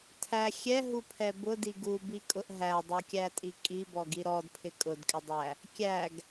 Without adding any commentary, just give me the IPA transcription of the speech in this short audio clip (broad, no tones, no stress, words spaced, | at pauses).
tʰæ xʲɛɦupʰɛ bʊdi ɡubikʼʊʔ ɦædˤukʲætʼi kʼibɔɡi ɾɔdpʰɪ kʼʊdkʼɪdˤæ | kʲæɡ